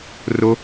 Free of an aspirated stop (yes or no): yes